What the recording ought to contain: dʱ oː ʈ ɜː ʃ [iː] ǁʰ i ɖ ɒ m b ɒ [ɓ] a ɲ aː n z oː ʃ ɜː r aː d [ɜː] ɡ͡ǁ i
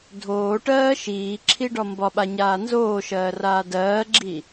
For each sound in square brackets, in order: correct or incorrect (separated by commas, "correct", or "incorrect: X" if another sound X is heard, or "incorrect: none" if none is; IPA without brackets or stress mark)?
correct, correct, correct